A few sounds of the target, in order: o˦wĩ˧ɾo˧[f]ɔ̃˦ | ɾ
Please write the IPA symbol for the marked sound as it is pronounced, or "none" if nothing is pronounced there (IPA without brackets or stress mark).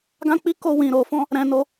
f